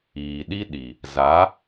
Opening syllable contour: low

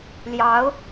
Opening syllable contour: rising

